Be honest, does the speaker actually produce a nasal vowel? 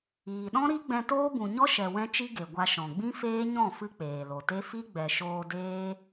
yes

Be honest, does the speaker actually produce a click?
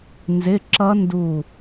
yes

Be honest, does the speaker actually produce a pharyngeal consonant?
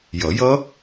no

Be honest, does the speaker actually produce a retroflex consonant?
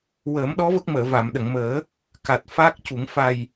no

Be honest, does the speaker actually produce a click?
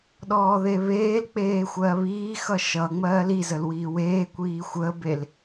no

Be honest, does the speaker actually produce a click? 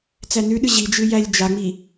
no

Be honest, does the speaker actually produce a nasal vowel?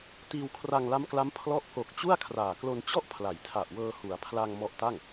no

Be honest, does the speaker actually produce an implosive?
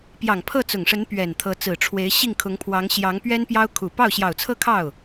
no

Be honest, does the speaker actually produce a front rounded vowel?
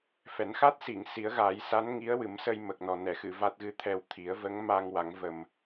no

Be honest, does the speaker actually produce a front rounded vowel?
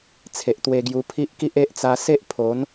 no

